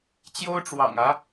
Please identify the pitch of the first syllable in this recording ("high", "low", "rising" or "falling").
high